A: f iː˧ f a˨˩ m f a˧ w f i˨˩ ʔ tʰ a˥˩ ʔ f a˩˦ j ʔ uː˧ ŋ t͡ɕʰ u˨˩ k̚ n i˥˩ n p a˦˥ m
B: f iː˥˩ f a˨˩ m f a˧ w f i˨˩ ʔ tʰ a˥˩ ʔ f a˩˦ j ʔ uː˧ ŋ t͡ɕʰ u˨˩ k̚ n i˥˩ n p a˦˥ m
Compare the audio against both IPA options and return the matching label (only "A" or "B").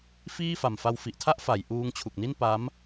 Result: B